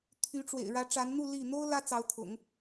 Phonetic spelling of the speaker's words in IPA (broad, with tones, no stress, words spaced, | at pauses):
t̪ʰy˧˥ʈ͡ʂwḛ˨˩ɪ̯ ɻä˧˥ʈ͡ʂa˧˥nn̪u˥˧ li˥˩ n̪o˥ʊ̯ lä˥t͡sɑ˧˥ʊ̯t̪ʰʊ̰˨˩˦ŋ